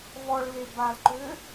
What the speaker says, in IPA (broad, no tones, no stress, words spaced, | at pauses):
vɔɭle balǃø